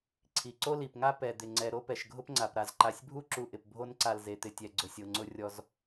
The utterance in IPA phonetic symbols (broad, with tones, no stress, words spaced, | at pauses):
ǀʰi˩ǀo˥li˩pŋa˥ pɛ˩d̪ɪ˩ ŋ͡ǀɛ˨ɾo˥ pɛ˩ʃɡʱʊ˦pŋ͡ǀa˩p ɾa˩zǃa˨sʲbʱu˥ ǁu˨ʔɪ˩p bʱo˦nǀa˨l ze˩t̪ɪ˩tʲɛ˩ ɡ͡ǀʊ˩sʲ o˩ŋ͡ǀʊ˨rʲɔ˨z